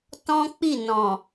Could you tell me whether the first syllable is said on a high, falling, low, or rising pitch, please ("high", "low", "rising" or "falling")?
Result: high